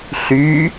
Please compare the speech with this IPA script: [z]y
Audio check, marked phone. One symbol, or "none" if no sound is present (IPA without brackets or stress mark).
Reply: ɬ